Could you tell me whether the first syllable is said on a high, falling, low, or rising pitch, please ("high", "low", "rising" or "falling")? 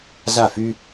falling